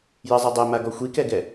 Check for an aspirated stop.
absent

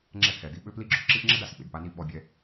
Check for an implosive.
present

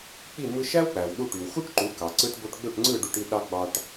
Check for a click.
present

